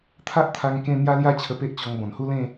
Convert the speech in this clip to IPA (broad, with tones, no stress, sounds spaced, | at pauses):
t̪ʰ a˦ ʔ t̪ʰ a˧ ŋ k ẽ˥˧ n̪ j a˦ l j a˦ t͡ɕʰ ə˧ p e˦ ʔ t͡ɕ ɔ˧ ŋ b ɔ̃˨˩ n h u˦ l ẽ˥˧